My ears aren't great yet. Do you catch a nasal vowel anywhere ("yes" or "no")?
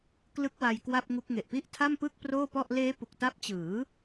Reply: no